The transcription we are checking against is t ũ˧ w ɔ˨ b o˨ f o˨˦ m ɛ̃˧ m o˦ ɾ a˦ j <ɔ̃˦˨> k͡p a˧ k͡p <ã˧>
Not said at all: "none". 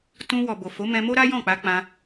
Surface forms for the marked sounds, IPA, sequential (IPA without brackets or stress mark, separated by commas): ɔ̃˦˨, ã˧